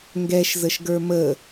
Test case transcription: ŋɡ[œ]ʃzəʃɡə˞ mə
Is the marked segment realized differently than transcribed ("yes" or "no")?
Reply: yes